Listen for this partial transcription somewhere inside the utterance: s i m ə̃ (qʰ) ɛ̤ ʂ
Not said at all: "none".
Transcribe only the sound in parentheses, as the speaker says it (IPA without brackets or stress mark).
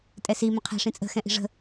qʰ